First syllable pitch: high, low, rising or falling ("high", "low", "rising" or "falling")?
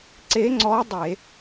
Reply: rising